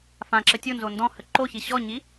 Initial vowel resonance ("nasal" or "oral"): nasal